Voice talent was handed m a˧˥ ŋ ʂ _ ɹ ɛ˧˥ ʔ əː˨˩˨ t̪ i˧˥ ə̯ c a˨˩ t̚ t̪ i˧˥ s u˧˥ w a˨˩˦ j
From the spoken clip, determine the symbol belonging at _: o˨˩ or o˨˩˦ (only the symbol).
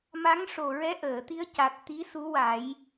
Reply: o˨˩